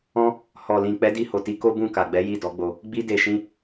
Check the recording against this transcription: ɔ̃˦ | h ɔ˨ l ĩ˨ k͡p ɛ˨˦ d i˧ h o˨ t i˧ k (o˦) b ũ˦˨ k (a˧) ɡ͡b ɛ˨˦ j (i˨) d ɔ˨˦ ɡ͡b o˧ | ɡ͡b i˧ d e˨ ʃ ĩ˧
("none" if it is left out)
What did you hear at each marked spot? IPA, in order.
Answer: o˦, a˨, i˦˨

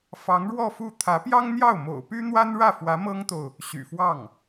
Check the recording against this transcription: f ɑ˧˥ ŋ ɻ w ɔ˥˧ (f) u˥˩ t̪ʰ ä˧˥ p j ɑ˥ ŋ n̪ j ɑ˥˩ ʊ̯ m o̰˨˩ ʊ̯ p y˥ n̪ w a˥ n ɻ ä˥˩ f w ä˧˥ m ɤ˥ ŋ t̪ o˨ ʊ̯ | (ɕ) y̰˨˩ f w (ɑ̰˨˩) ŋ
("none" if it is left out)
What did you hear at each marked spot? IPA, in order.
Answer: f, ɕ, ɑ˥˩

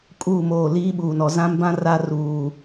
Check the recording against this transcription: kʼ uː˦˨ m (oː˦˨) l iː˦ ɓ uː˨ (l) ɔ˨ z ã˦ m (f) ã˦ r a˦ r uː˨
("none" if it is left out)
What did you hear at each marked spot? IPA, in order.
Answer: oː˦˨, n, b

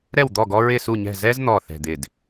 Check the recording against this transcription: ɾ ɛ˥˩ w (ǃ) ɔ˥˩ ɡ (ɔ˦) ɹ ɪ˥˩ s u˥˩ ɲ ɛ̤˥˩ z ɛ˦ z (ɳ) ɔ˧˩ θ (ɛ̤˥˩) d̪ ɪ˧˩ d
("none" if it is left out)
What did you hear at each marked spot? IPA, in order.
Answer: d̪, ɔ˦, n̪, ɛ̤˧˩

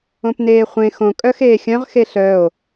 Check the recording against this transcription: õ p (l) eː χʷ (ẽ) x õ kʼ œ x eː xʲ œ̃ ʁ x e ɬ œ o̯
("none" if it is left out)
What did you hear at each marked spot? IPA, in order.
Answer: n, ẽ

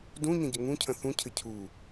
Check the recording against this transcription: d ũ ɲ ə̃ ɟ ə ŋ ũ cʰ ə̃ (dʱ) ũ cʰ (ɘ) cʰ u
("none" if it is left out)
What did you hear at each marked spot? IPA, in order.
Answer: θ, ɘ

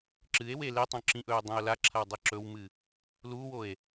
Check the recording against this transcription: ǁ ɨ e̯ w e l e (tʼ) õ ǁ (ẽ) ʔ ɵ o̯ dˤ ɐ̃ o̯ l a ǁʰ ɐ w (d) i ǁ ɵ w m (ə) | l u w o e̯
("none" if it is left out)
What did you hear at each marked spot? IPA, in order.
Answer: tˤ, ĩ, dˤ, ɨ

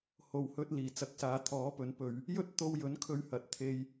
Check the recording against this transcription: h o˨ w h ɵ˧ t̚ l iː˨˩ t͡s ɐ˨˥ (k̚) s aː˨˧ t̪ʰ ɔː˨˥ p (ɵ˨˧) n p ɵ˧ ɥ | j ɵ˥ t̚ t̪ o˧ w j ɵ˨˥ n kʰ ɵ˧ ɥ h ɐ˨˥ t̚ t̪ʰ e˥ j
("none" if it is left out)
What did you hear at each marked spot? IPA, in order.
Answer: k̚, ɵ˨˧

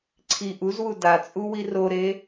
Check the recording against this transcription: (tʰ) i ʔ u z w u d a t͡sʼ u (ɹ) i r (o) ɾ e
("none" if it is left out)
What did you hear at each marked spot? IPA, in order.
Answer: ǀʰ, w, o

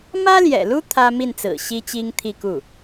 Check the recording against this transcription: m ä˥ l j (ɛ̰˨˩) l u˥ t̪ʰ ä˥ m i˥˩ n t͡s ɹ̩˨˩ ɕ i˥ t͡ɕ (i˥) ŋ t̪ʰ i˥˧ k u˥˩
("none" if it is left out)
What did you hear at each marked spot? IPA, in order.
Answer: ɛ̰˨˩, i˥

